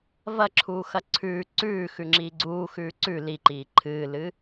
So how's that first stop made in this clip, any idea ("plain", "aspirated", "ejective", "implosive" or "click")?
click